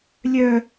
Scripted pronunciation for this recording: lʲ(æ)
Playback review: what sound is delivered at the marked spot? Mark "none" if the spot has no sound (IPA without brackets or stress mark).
œ